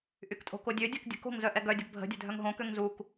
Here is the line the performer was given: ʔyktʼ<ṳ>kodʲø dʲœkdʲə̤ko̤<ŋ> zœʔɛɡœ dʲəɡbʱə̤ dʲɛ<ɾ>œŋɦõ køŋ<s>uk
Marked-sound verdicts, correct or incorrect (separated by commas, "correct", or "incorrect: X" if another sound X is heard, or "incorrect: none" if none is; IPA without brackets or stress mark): incorrect: o̤, correct, incorrect: dʱ, incorrect: z